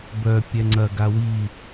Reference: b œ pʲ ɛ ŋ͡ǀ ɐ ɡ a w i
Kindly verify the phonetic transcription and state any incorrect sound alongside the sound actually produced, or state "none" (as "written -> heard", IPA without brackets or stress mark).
none